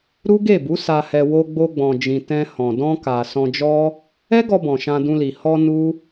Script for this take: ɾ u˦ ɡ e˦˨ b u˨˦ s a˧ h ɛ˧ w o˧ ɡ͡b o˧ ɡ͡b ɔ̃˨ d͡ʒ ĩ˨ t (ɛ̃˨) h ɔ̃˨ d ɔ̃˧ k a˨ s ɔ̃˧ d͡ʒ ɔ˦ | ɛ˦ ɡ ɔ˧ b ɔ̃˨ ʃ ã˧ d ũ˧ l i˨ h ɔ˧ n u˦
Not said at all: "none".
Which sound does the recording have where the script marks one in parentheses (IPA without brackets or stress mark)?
ɛ̃˧